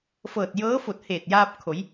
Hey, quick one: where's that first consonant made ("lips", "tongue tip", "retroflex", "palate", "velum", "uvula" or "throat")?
lips